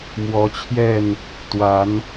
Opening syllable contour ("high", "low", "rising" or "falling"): rising